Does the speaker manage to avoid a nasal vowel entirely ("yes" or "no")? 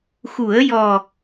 yes